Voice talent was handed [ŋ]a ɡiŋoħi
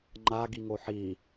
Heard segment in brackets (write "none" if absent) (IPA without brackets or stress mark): ŋ͡ǃ